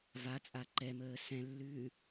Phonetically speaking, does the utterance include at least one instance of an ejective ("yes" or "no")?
yes